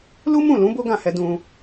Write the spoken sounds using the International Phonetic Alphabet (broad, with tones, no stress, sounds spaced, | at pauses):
l u˦ m ũ˦˨ l ũ˨˦ b o˦ ɡ ã˦˨ h ɛ˧ d ũ˧